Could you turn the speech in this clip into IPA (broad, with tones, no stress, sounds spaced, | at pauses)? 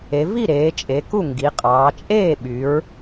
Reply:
e˩˧ v i˥˩ ɾ eː˩˧ t͡ʃʼ e˩˧ k u˥˩ ŋ ɡ i˩˧ qʼ ɑː˩˧ t͡ʃʼ eː˥˩ ɓ y˩˧ ɹ